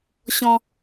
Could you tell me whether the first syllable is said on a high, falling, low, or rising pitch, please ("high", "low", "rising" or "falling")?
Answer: high